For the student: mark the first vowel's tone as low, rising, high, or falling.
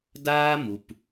high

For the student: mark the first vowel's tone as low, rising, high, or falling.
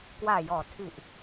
low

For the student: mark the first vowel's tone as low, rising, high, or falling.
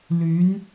rising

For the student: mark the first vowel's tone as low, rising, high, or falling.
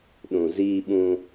low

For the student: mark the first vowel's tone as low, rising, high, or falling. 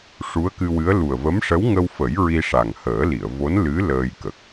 rising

